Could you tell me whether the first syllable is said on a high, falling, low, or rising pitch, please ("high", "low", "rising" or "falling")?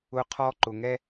high